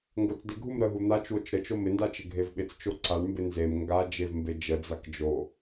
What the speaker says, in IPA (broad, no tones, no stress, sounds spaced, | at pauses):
ŋ ɡ o t͡s d ɪ ɡʱ u m ɾ ə ɦ u n̪ a t͡ʃ w o t͡ʃ ɾ ə t͡ʃ o m ɪ n d a t͡ʃ ɪ ɡʱ e v ɓ ɪ t͡s t͡ʃ o ǀ a ɳ m b ɪ n z e m ŋ ɡ a d͡ʒ e v m b e d͡ʒ ə d͡z a k d͡ʒ o